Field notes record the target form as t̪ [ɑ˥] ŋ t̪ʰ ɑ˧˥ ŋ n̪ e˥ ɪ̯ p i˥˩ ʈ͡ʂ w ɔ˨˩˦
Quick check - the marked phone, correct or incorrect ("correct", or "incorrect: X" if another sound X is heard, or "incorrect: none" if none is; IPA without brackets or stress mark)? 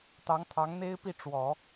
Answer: incorrect: ɑ˧˥